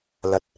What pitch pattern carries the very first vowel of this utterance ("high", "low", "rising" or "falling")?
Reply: low